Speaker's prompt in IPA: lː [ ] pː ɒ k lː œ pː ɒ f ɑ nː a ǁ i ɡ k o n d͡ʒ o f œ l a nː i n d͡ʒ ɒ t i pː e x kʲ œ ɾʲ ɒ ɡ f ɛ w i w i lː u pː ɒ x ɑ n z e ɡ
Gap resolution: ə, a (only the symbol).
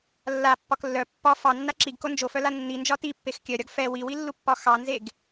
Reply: a